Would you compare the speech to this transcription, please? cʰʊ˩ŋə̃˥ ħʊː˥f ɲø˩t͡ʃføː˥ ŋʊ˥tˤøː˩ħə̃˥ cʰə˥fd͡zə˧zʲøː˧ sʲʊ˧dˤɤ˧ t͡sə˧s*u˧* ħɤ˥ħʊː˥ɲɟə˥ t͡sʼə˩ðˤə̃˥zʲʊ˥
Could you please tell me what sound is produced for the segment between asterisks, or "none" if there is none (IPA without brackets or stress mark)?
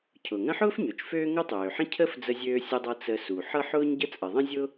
u˩